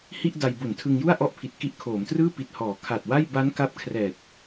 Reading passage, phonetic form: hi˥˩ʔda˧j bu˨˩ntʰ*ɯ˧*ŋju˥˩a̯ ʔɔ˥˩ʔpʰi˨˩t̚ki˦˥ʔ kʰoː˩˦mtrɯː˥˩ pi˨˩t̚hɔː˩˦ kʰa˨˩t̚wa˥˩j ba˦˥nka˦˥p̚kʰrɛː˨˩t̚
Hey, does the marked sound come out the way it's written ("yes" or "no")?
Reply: yes